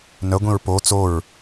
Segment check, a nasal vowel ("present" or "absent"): present